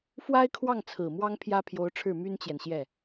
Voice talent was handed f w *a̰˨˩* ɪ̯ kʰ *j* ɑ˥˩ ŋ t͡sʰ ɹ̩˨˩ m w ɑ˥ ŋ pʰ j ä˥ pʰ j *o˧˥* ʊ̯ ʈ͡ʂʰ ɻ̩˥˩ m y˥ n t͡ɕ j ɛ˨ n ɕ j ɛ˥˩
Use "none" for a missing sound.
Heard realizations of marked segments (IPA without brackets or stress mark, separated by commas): a˥, w, o˧˥